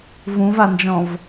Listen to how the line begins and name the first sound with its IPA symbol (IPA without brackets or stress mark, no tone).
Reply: v